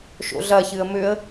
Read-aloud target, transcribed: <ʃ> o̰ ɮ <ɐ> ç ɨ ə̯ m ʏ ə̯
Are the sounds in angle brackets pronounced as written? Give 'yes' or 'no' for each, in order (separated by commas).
yes, yes